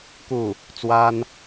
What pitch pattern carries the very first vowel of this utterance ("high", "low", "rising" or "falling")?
falling